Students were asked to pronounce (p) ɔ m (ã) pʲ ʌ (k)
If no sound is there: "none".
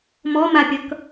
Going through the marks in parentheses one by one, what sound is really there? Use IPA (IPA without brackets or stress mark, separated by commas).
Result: m, a, k